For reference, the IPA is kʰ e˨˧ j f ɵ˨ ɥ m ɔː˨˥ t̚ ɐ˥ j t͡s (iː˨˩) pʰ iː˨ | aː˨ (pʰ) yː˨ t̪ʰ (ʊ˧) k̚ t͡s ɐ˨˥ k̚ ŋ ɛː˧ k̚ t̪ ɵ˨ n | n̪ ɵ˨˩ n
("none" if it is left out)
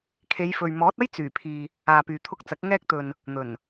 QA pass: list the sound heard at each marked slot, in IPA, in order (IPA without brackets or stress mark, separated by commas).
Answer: yː˨˩, p, ʊ˧